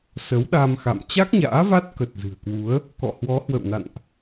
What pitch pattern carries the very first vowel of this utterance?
rising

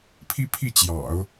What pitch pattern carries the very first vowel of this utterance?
high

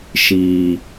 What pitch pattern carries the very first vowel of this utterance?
low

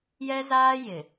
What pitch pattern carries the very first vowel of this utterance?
high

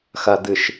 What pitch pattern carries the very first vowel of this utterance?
low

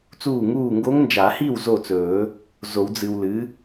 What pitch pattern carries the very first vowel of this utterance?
falling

